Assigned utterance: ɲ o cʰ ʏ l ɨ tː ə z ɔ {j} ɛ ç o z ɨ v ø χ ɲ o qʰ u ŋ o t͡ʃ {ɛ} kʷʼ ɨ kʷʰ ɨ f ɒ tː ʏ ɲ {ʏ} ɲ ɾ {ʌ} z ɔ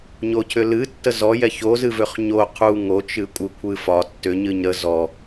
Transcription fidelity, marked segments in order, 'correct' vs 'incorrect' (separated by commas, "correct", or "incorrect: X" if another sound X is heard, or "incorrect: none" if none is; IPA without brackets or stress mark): correct, incorrect: ɨ, incorrect: ɨ, incorrect: ə